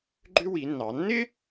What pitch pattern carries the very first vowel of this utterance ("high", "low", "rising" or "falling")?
high